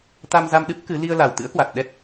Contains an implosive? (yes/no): yes